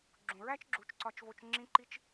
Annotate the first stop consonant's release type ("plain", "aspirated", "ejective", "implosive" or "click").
click